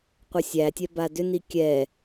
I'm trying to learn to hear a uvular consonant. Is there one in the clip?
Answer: yes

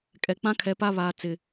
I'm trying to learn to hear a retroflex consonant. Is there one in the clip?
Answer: no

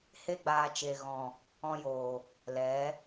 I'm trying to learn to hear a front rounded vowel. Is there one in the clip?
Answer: no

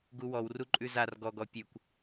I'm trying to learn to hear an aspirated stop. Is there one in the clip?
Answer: no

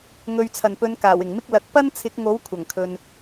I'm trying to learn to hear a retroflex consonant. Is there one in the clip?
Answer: no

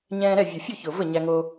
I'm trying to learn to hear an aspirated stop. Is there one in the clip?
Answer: no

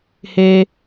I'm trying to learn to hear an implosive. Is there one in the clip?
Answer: no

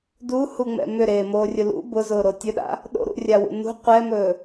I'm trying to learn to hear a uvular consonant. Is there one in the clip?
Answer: yes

